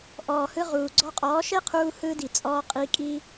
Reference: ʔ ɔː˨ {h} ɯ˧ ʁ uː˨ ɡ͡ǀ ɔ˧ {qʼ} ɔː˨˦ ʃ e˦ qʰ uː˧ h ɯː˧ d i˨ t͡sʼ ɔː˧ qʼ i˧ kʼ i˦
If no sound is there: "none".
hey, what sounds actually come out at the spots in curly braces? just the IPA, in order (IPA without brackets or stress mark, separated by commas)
h, qʼ